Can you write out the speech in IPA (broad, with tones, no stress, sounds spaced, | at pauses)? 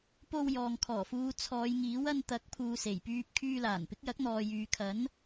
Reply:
p o˧ w j ɔː˨ ŋ kʰ ɔː˨˩ f uː˨˧ t͡sʰ ɔː˨˧ j ŋ iː˨˥ w ɐ˧ n t̪ ɐ˨˥ k̚ pʰ uː˨ s e˨˩ j p yː˧ p̚ kʰ yː˧ l aː˨˩ n p ɪ˨˥ k̚ j ɐ˨˥ k̚ n̪ ɔː˨ j yː˨ kʰ ɐ˨˥ n